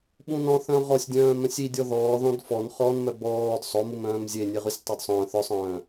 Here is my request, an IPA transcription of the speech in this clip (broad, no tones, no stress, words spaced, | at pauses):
ɓũnɔ̃ θœ̃ʁɔsʲdʲœ̃ː mœ̃sʲidʲɔ ðɔːðɔ̃d fɔn χɔnmœ bɔːd sˤomum œ̃ːmzʲe nʲeʁysʲtˤodsˤœ̃ː θœsˤœ̃ː